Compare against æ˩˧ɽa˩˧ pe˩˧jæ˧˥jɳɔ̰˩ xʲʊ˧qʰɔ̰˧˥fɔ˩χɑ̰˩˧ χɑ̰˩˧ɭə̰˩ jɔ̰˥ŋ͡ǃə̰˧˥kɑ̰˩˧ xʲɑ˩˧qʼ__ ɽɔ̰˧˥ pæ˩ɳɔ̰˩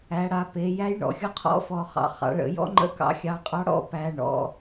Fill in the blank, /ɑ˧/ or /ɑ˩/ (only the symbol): ɑ˧